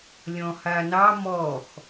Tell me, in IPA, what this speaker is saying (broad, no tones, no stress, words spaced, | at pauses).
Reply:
lʲɔ̃hanɑ mɔx